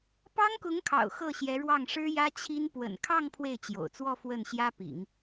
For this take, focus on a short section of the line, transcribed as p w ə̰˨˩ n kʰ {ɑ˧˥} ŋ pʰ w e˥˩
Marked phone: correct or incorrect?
incorrect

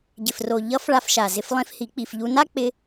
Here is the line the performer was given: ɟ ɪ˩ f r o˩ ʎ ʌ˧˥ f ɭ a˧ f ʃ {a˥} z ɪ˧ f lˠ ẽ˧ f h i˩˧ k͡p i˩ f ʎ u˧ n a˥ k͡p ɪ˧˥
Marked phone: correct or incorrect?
incorrect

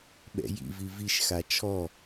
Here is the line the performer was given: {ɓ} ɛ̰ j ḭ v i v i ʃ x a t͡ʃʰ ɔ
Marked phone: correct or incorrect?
correct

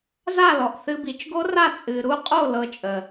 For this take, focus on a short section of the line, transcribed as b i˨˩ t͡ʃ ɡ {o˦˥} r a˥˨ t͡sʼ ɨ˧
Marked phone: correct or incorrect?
correct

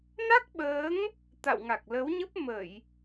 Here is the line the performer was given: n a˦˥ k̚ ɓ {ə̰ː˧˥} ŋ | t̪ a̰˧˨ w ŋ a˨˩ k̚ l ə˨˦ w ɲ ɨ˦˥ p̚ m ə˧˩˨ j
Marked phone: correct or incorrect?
incorrect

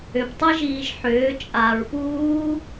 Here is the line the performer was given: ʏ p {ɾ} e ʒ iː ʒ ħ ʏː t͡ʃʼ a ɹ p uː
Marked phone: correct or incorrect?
incorrect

